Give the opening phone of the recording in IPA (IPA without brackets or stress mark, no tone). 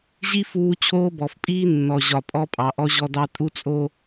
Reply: ʑ